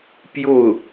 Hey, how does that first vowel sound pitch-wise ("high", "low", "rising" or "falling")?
falling